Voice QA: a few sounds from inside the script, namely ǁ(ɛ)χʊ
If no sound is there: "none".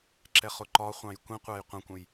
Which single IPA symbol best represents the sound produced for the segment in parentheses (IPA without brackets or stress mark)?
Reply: ɛ